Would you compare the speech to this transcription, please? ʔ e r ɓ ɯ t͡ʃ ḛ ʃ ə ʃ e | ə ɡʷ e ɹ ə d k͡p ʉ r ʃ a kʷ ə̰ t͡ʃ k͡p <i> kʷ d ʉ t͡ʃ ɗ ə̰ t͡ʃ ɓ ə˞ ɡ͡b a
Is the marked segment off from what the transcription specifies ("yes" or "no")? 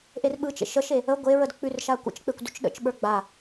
yes